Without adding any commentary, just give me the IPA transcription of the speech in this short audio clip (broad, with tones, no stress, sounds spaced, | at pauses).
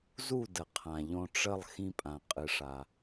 z u˥˩ d ə˩ qʰ ã˩ ʎ õ˧ ʈ͡ʂ ə˥˩ lˠ x ĩ˧ pʼ ã˩ qʼ ɨ˩ ʂ a˩